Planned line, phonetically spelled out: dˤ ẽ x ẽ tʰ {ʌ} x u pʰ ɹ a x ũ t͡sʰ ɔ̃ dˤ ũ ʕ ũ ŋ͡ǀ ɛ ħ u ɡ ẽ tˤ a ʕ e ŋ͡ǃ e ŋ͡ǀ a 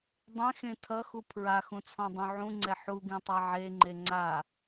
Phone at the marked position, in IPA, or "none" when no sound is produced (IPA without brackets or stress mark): ʌ